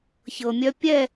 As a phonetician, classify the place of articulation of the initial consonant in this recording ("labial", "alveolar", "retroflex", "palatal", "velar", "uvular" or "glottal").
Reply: palatal